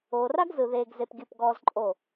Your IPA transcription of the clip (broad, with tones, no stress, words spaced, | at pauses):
oː˨ra˦ɡzɯ˨ ðeː˦ɡze˦p ɡʲɯ˦˨pɡɔː˦zǃʼo˦˨